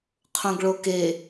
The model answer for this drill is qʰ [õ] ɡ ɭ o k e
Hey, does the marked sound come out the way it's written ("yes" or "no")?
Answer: yes